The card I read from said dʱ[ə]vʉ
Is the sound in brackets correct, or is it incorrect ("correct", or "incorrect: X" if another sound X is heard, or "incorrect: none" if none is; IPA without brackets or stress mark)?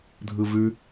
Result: incorrect: ɯ